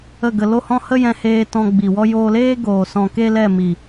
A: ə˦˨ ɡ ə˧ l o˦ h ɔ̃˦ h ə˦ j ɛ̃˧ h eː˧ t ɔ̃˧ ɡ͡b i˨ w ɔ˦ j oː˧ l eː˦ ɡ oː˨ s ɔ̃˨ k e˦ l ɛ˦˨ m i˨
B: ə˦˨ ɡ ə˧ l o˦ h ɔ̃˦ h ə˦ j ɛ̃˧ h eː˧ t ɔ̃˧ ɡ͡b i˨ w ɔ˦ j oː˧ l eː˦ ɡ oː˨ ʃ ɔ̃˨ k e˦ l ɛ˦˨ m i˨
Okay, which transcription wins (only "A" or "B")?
A